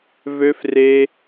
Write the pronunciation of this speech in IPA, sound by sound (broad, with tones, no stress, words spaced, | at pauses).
vø˧fre˧